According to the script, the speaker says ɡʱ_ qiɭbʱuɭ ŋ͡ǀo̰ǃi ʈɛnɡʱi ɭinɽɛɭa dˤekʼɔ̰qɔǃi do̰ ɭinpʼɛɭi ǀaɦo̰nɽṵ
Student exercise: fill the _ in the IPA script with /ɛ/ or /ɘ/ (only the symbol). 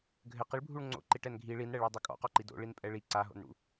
ɘ